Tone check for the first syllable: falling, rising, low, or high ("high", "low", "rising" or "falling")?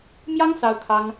high